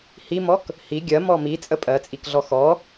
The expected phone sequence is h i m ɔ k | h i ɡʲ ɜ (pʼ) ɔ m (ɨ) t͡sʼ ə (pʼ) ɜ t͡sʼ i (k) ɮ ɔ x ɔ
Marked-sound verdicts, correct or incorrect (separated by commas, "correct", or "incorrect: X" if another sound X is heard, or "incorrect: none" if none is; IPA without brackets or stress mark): incorrect: m, incorrect: i, correct, correct